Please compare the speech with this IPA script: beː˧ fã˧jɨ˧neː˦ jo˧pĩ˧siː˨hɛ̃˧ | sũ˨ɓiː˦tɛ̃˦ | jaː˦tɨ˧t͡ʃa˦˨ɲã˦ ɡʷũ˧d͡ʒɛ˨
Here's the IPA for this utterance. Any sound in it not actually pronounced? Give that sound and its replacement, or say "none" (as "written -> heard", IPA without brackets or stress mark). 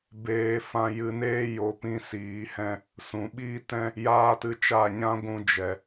none